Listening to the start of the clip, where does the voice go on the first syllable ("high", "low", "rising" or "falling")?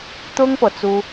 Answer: high